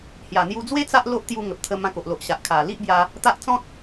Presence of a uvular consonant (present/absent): absent